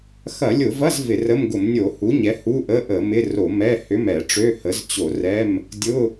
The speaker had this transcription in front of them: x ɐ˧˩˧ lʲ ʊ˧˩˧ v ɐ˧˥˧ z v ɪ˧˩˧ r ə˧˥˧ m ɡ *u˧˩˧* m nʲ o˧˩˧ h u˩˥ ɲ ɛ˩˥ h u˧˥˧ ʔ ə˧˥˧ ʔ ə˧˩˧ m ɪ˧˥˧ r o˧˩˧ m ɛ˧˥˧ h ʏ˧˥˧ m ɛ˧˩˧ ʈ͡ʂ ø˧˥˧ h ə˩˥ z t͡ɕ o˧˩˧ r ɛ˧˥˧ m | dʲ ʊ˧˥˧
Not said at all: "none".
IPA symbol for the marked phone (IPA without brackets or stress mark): ʊ˧˩˧